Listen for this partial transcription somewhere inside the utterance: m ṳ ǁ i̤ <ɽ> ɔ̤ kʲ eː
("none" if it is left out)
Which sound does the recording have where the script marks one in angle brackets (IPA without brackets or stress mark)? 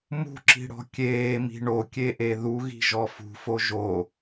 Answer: ɽ